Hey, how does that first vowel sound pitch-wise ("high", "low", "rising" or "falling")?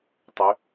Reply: rising